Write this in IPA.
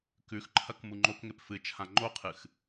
k ʉ x ǃʰ ɐ k m u ŋ͡ǃ o k ŋ e p f ɨ t͡ʃʰ ã ŋ͡ǃ o qʰ ɨ x

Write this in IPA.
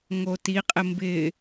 ŋ o t i qʼ ɪ m b ɪ

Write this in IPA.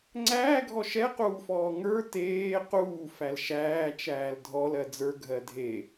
ŋ͡ǀ æː ɡʱ ɔ ʃ ɛ q uː f ɔː ŋ ə˞ t eː q uː f æ l ʃ æː t͡ʃ æː l dʱ ɔ l ɜ d͡z ə˞ ɡʱ ɜ dʱ e

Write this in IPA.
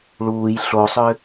ɭ uː j ɬ o sˤ ʏ

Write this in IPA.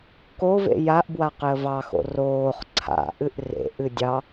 k o v ḛ j a ʔ b w a q ɪ ə̯ v ɑ x o̰ r oː χ ǀʰ a̰ ʔ ɨ ʔ r ḛ ʔ ɨ dʲ ɑ

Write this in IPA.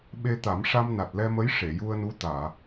ɓ e˧ t̪ a˨˩˦ m ʂ a˧ m n a˨˩ t̚ l ɛ˧ m ə˧˥ j ʂ e˨˩˨ j u˧ ə̯ n u˧˥ t̪ aː˨˩˨

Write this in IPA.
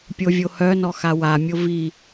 pʲ o vʲ o h œ n ɔ x a w a mʲ o v i

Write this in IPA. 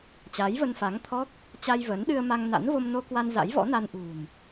t͡ɕ aː˨˦ j v ə˧ n f a˨˦ ŋ t̪ʰ ɔ˦˥ k̚ | t͡ɕ a˧ j v əː˨˦ n ɗ ɨ˧ ə̯ m a˧ ŋ n a̰˧˥ n v o˧ m n o˧ k w a˧ n z a̰˧˥ j v ɔ̰˧˥ n a˧ n ʔ ṳ˨˩ n

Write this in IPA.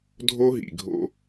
dʱ o˦ ɦ ḭ˨ ɡʱ o̰˦

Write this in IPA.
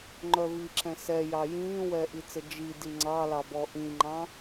ŋ͡ǃ œ v i ǁ ɛ̃ s ɛ j ɑ j ĩː w ɛː ʔ i t͡s ə d͡ʒ i d i ŋ͡ǀ ɑ l ɑ b ɔ ʔ ĩ ŋ͡ǃ ɑ̃

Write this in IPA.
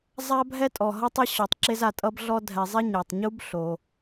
zˤ a˥ bʱ ɛ˥ tʼ ɔ˩ ɦ ʌ˥ tˤ e˥ ɕ ɔ˨ tˤ ǁ e˦ z a˨ tʼ ʌ˦ b ɮ ɔ˦ dʱ ɛ˨ zˤ e˥ ɲ a˩ tˤ ɲ u˥ b ɬ o˩

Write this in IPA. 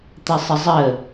t̪ ə sˤ ə zˤ ə

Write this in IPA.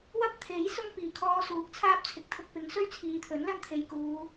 w ɐ˥ p̚ t̪ʰ e˨˥ j s ʊ˥ ŋ p iː˨˩ kʰ ɔː˧ s uː˨˥ k̚ t͡sʰ aː˥ p̚ t͡sʰ ɪ˨ k̚ t̪ʰ ʊ˧ k̚ p ɪ˨˥ ŋ s ɵ˥ ɥ t͡sʰ iː˨ t̪ʰ ɵ˨˥ n l ɐ˥ n t̪ʰ e˨ j k uː˨˧

